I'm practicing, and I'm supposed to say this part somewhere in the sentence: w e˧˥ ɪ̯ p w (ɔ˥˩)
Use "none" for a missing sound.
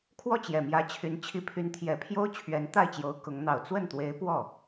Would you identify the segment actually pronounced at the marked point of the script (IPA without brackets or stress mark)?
ɔ˥˩